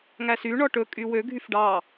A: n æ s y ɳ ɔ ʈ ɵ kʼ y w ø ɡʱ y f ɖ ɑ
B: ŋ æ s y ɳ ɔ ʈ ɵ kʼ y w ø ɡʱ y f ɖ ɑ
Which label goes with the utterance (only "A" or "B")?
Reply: B